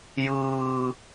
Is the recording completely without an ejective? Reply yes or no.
yes